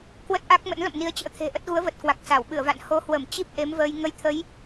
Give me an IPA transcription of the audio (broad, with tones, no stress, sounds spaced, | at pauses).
k w ə˦˥ t̚ ʔ a˦˥ k̚ m ə̰˧˥ n l ə̰˧˨ m n i˨˦ ə̯ t͡ɕ ə̰ː˧˥ t̪ʰ e̤˨˩ ʔ ə˦˥ t̚ ɣ u˨˦ ə̯ v ə˨˩ t̚ k w a˨˩ k̚ s a˧˩ w ɓ ɨ˧˩ ə̯ v a̰˧˨ n h o˨˦ h w ə˧˩ m t͡ɕ i˦˥ p̚ ʔ e˨˦ m v əː˧ j ŋ ə˧ j t̪ʰ ə˨˦ j